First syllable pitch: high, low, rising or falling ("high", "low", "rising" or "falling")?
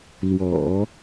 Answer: low